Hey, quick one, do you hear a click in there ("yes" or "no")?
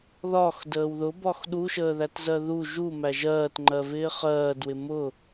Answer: yes